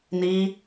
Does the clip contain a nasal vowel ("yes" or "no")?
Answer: no